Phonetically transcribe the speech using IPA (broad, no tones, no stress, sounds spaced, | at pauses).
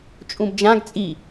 t͡ʃʼ ũ b d͡ʒ ã ɡ t͡sʼ i